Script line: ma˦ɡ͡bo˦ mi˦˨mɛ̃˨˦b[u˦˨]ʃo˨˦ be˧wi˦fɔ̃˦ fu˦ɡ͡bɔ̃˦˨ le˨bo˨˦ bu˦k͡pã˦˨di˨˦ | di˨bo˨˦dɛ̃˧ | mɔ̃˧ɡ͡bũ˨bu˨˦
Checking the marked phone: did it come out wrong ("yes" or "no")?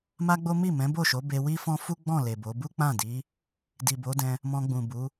yes